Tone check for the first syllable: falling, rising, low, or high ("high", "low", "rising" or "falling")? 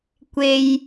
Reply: low